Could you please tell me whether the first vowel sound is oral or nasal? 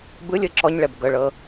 oral